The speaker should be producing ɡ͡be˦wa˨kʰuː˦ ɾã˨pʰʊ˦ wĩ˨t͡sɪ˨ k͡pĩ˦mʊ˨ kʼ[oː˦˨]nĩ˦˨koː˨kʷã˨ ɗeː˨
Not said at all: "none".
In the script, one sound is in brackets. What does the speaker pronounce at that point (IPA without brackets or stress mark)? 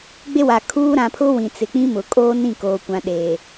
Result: oː˦